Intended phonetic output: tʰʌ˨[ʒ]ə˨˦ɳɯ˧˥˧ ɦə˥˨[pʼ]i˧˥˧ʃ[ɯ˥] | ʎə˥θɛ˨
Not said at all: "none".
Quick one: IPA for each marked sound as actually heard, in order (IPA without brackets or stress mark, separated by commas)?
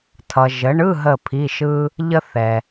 ʒ, pʰ, ɯ˥